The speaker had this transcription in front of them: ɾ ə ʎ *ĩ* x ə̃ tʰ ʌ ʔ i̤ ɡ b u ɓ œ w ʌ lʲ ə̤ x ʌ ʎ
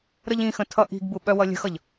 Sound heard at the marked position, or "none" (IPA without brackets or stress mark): ĩ